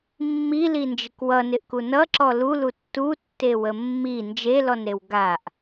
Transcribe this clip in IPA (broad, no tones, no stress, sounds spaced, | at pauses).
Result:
mː i l i n d͡ʒ ɪ k w ʌ n ɪ ʔ k u n ʌ ǁ ɔ l u l u tː u tː e w ə mː i n d͡ʒ e l ɔ n ɾ e w ɡ a ʔ